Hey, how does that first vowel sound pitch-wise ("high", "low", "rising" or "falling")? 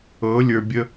rising